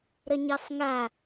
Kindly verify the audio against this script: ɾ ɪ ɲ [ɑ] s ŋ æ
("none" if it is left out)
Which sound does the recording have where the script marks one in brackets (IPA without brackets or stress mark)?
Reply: ɑ